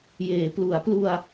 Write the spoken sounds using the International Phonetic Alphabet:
jeː˩˦ plu˩˦a̯plu˧a̯

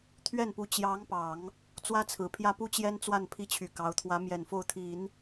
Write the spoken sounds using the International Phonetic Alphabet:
t̪ʰɥɛ˥˩npu˧˥ t͡ɕjɑ˧˥ŋpɑ˨˩˦ŋ | t͡swä˥t͡sʰɹ̩˨˩pʰjä˥ pu˥t͡ɕjɛ˥nt͡swa˥˩n pʰi˥t͡ɕʰy˨˩kɑ˧˥ʊ̯ t̪ʰwä˧˥mjɛ˨˩n fo˥˩ʊ̯ t̪ʰi˨˩˦n

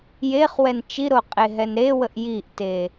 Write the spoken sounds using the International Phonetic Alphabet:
jeχwɛn t͡ʃiɾoqʼeɦɛn ɾewəʔ jiʔte

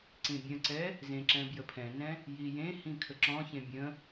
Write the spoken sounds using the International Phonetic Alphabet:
ǀĩbʲə̃ǀɛ | zẽǁɛ̃ bjəpʰɛ̃nɛ̃ | jijẽhĩ kʰəǁɔ̃çẽ bʲə̃

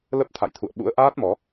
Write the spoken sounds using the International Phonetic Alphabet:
lə˦˥p̚ t̪ʰa̰˧˨jt̪ʰṵ˧˨ə̯ ɓṵ˧˥ə̯ʔaː˦˥t̚mɔ˨˦

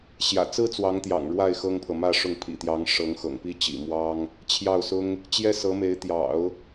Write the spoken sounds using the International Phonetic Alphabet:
ɕjä̰˨˩t͡sɹ̩˥ t͡swɑ˧˥ŋt̪jɑ̰˨˩ŋ ɻwa˥˩ɪ̯ xɤ˥ŋpʰɤ˨mä˥˧ʂʊ˥˩ŋ pʰḭ˨˩t̪jɑ˧˥ŋ ʂɤ˧˥ŋxɤ̰˨˩ŋpi˥ t͡ɕḭ˨˩mwɑ˥ŋ | t͡ɕʰjɑ˥˩ʊ̯sʊ˥ŋ | t͡ɕjɛ˥sɤ˧˥me˧˥ɪ̯ t̪jɑ̰˨˩˦ʊ̯

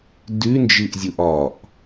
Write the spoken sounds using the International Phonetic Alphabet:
dʉnd͡ʒɨʔzʲuʔ ɒʔ

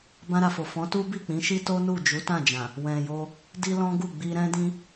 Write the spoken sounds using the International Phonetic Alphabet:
bã˧ɾa˨fo˨ fɔ̃˨˦tu˦bi˦˨ k͡pĩ˨˦ʃi˦ to˦ nu˦˨ d͡ʒu˨˦tã˦˨d͡ʒã˨ | wɛ̃˨jo˧ | di˦lɔ̃˦ɡu˦˨ ɡ͡bi˧ɾɛ̃˦dĩ˦

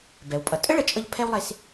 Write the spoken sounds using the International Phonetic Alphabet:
bɛ˩wpʼʌ˩ tʼə˥ɭə˩t͡ʃʼʌ˧ʎ pʰɛ˥wlˠe˧s

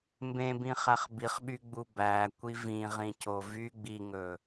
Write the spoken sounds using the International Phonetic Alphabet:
mbẽbĩ χæχbiχɓy ɡ͡bubækʷi vĩʁĩco vy ɡ͡biŋɵː

